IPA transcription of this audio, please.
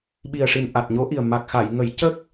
ɓ i˨˩ ə̯ ʂ i˨˩ n ʔ a˨˩ t̚ ɲ o˧˥ ʔ i˨˩ ə̯ m a˨˩ k̚ x a˨˩˨ j ŋ ə˨˩˦ j c ə˦˥ k̚

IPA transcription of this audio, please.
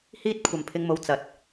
h iː˥ t̚ kʷʰ ɐ˨ m pʰ ɪ˧ ŋ m o˨ w t͡s ɐ˨ t̚

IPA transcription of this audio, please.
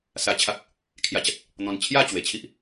s a˧ t͡ɕʰ a˦ k̚ | kʰ j a˧ t͡ɕ a˦ t̚ | n̪ ɔ̃˧ n t͡ɕʰ j a˥˧ t͡ɕ w e˨˩ t͡ɕʰ i˦ ʔ

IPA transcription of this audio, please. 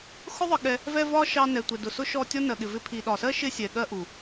x ʊ˦ ðˤ ə˧ ɠ ɛ˧ | v ɛ˧ v ɒ˦ ʃ ɑ˧ n ɛ˨ tʷ ɛ˨ d ʊ˨ s ʊ˦ ʃ ɔ˦˨ tʲ ɔ˦ n ɜ˨ ɠ ɪ˨ v ɪ˧ pʰ i˨ ɗ ɒ˨ s ɜ˦ ʃ ɪ˦ sʲ ɛ˨ ɠ ɜ˦ ʔ u˨

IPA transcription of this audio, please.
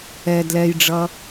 ɛ d l ɛ j ɖ͡ʐ ʌ

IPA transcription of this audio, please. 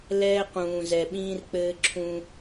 l ɛː˦ q ũː˨ z ɛ˨ ɓ ĩː˦ r k͡p ɘː˦ ǁʰ ũ˦

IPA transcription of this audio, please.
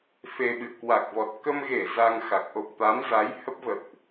f e˧ ɓ ɨ̰˧˨ ə̯ k w a˨˩ k̚ v ɔ˨˩ t̚ k ə˧ m ɣ e˧˩ z a˧ ŋ x a˨˩ k̚ ʔ o̰˧˨ ŋ t̪ a˨˦ m z a˨˦ j h ə˦˥ p̚ v ə̰˧˨ w ʔ

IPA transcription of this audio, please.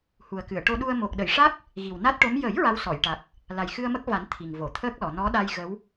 h u˨˩ ə̯ k ɨ˨˩˨ ə̯ ʈ o˧ ɗ u˧ ə̯ m o˨˩ k̚ ɗ ə˨˩˨ j ʂ a˦˥ k̚ | ɣ i˨˩ w n a˦˥ t̚ ʈ o˧˥ m j ə˨˩˦ j ɹ a˧˥ w s ɔ˨˩˨ j ʈ a˨˩ k̚ | l a˨˩ j x ɨ˧ ə̯ m ə˦˥ k̚ v a˨˩˦ n t̪ʰ i˨˩ ŋ v o˨˩˨ t̪ʰ əː˦˥ k̚ l ɔ˨˩˨ n ɔ˧˥ ɗ a˧ j ɣ ə˧˥ w

